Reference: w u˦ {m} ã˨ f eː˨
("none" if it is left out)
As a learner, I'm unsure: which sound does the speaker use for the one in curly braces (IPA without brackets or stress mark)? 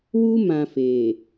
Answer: m